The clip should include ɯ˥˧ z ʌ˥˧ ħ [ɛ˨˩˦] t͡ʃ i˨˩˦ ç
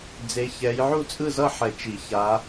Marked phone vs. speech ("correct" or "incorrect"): correct